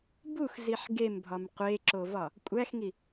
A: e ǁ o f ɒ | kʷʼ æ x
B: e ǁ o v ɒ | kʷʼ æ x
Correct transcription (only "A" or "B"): B